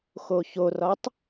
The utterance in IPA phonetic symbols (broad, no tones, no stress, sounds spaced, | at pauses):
x o ç o r ɒ tˤ